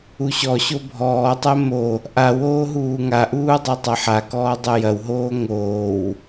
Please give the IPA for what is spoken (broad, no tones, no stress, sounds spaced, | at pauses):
u ɕ ɔ ɕ o bʱ ɔː tˤ ɛ m o | ʔ a w oː ɦ uː ŋ a ʔ uː dˤ a tˤ ɐ ħ a k ɔː dˤ ɛ j ɐ w ɦ oː ŋ oː w